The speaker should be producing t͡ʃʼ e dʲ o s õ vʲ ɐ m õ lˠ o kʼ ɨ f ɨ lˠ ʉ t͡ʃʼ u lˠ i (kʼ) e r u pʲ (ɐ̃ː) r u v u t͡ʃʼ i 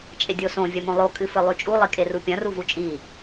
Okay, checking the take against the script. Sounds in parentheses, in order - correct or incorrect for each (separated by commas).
correct, incorrect